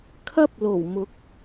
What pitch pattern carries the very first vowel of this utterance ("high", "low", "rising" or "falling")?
high